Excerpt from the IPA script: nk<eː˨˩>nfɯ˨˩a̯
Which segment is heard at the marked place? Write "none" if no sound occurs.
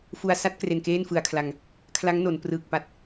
eː˥˩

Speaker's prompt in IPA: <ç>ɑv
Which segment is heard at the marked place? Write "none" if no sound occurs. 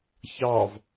ç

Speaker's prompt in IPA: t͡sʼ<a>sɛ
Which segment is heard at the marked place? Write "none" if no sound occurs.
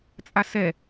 a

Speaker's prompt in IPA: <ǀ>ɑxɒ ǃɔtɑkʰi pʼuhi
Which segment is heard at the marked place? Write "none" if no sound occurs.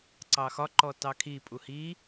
ǀ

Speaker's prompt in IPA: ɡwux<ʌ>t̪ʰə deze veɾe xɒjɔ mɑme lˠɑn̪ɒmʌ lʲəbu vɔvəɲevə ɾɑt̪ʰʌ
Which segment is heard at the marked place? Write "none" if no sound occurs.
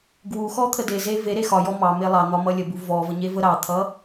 ɔ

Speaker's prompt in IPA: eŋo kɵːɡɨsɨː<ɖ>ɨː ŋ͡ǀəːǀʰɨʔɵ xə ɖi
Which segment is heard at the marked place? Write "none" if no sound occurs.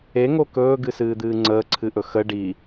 d̪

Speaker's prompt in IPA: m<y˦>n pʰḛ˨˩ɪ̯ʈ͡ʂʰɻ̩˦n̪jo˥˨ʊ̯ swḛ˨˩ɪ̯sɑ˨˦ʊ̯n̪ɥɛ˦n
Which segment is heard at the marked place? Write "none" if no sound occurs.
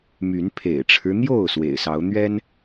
y˨˦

